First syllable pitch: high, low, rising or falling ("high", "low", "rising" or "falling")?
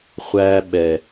high